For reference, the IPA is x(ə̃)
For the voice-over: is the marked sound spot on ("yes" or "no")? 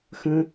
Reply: yes